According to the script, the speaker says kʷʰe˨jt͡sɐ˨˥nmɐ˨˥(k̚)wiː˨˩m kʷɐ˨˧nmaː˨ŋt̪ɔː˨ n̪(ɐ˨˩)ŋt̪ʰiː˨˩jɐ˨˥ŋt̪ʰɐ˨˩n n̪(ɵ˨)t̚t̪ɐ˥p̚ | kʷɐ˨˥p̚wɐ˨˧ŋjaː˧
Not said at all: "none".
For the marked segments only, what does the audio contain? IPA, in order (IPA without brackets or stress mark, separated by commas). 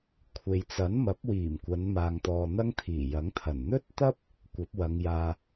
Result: p̚, ɐ˥, ɵ˥